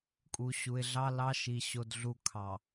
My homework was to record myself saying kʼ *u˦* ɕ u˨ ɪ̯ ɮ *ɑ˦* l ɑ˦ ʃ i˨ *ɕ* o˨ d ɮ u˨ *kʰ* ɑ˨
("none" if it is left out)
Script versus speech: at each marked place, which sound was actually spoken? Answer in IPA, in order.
u˨, ɑ˦, ɕ, kʰ

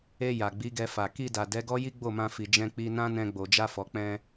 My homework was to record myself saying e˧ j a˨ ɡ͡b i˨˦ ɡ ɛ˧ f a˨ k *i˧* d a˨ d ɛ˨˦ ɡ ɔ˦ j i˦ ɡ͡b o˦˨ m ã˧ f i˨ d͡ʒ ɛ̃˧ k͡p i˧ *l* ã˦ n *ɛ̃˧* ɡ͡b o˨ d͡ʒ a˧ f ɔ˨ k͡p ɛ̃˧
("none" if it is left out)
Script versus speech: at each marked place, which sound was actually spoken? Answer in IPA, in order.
i˧, n, ɛ̃˧

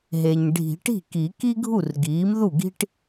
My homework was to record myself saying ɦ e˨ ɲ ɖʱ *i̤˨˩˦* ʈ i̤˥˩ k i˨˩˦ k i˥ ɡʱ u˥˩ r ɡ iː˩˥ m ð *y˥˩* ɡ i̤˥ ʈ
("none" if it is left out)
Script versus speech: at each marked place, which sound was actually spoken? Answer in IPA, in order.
i̤˨˩˦, u˥˩

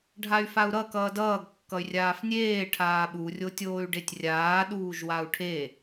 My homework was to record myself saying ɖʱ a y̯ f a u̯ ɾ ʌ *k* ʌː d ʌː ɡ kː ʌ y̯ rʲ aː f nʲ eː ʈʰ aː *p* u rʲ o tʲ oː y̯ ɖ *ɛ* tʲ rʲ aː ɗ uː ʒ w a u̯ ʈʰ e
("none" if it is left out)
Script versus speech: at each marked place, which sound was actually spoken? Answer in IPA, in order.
k, ɓ, e

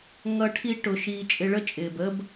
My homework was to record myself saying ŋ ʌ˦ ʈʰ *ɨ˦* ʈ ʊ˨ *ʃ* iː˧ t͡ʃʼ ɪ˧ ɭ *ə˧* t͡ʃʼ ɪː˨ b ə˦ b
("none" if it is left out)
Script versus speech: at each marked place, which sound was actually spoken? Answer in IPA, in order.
i˦, ʃ, ə˦

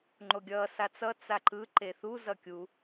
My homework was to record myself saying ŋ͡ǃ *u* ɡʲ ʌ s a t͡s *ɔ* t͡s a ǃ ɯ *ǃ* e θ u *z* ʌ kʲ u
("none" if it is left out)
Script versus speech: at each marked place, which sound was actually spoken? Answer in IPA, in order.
o, ʌ, ǃ, z

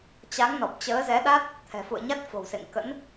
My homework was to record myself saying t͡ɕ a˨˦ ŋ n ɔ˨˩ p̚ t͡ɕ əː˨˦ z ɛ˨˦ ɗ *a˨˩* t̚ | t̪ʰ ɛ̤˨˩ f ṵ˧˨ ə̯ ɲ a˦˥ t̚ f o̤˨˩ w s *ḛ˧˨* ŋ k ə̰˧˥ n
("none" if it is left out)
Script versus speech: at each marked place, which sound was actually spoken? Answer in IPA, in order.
a˦˥, ḛ˧˨

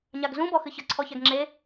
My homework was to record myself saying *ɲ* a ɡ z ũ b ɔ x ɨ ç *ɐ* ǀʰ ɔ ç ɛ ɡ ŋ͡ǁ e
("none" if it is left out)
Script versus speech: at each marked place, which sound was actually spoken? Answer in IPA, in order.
ɲ, ɐ

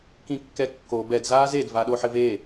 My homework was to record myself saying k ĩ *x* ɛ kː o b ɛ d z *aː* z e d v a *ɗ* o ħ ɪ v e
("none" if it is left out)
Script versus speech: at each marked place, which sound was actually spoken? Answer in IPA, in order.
kː, aː, ɗ

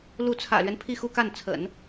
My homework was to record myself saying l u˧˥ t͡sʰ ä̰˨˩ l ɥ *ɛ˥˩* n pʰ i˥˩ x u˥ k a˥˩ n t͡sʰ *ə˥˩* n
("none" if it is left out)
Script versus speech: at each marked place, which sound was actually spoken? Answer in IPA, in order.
ɛ˦, ə̰˨˩˦

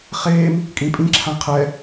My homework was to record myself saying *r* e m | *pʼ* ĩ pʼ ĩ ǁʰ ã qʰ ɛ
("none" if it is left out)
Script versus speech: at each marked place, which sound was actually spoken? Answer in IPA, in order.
χ, kʼ

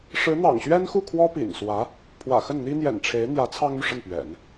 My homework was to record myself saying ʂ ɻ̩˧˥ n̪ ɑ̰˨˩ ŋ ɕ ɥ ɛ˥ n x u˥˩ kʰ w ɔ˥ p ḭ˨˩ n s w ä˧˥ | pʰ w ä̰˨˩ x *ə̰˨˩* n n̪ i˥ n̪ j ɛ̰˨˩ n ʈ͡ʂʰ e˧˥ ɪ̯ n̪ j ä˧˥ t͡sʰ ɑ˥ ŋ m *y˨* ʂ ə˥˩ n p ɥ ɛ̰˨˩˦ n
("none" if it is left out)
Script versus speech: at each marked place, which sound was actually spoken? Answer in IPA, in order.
ə˥˩, y˨

